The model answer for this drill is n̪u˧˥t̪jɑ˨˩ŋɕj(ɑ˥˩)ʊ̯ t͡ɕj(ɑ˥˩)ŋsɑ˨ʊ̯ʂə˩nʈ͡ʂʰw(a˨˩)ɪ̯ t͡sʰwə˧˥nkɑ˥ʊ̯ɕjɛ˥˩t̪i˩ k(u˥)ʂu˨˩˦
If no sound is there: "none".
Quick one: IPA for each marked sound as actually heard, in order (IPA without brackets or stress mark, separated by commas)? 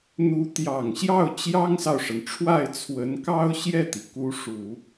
ɑ˥˩, ɑ˥, a˥˩, u˧˥